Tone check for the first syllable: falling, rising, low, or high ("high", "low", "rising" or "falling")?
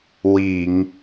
low